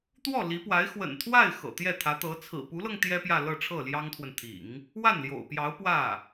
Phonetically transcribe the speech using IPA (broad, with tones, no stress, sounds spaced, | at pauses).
t̪ w ɔ˥˩ l i˧˥ p w a˧˥ ɪ̯ x w ə̰˨˩ n t̪ʰ w a˥˩ ɪ̯ x ɤ̰˨˩ t̪ j ɛ˥˩ t̪ʰ ä˧˥ t̪ ɤ˧˥ t͡sʰ ɹ̩˨˩ p u˧˥ l ɤ˧ ŋ t̪ j ɛ˥ p j ä˥˧ l ɤ˥˧ ʈ͡ʂʰ ɤ˥˩ l j ɑ˥ ŋ t̪ʰ w ə˨ n t̪ʰ ḭ˨˩˦ ŋ | w a˥˩ n l j o̰˨˩ ʊ̯ p j ɑ˧˥ ʊ̯ p w ä˥˩